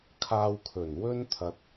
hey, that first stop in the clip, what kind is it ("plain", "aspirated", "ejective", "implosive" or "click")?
aspirated